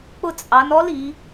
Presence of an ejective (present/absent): present